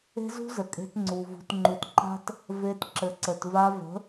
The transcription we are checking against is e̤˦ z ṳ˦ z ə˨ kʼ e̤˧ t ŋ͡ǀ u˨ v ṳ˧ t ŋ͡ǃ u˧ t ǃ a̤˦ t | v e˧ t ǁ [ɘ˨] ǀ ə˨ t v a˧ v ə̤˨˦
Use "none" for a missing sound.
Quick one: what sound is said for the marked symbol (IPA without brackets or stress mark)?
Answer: ɘ˨